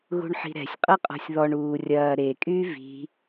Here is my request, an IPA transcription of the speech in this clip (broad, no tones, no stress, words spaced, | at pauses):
ɣṳɳħi̤ɾɛ̤sʲ qʼɐqʼɔ̤sʲðɔɳ uːrʲɐː ɾekʼyː vi̤